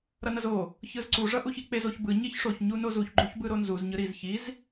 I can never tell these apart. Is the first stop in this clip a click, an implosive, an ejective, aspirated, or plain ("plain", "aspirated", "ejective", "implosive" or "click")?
click